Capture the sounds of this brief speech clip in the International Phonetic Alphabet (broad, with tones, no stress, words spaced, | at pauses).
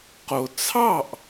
qo˧ t͡sʰɑ˥˩ʔ